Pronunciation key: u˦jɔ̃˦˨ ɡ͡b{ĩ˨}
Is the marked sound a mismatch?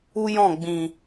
no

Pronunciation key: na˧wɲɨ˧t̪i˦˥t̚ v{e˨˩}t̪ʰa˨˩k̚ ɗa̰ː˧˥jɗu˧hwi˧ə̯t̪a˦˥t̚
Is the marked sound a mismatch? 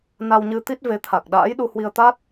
yes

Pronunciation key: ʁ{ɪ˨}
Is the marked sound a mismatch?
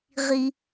yes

